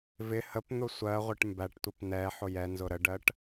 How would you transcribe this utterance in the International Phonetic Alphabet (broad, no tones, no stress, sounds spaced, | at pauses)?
v ɪ h ə p n̪ ʊ sʷ ɜ ʁʷ ə ʈ m b æ ʈ tʷ ə p n ɛ ħ ʊ j ɛ n z ʊ ɾ ə ɖ ɜ ʈ